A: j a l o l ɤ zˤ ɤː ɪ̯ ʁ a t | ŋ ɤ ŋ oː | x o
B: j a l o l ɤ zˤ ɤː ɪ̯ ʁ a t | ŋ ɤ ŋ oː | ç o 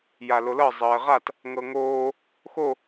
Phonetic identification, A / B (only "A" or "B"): A